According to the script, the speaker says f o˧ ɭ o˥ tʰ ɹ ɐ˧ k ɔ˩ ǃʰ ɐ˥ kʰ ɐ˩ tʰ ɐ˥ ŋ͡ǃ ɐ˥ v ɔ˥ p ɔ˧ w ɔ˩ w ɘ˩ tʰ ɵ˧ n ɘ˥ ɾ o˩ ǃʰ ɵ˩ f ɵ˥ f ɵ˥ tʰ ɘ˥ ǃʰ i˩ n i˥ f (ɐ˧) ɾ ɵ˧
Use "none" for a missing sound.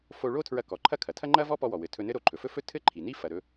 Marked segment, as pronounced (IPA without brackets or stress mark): ɐ˩